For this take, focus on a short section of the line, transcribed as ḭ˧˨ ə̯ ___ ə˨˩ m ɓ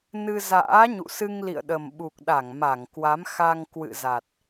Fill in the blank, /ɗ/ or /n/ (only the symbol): ɗ